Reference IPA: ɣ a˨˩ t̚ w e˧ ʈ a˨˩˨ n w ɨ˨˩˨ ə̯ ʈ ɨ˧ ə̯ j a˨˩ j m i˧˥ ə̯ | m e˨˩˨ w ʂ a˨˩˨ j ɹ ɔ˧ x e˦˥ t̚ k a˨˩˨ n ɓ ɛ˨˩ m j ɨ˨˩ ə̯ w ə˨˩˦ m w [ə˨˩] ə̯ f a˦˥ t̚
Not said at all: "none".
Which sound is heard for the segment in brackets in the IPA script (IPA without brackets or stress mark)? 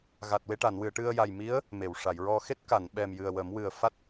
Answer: ɨ˨˩